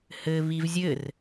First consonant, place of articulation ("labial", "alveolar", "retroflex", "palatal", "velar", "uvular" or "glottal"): glottal